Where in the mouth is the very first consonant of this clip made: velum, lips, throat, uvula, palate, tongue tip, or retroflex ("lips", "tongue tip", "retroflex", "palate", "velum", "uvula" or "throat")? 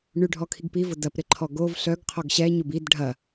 retroflex